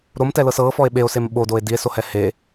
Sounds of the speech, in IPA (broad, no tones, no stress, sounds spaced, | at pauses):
ɾ o m t ɛ l ɤ s ɤ f ɔ e̯ ɓ e o̯ s e m ɓ o d o e̯ d i e̯ s o h ɛ h e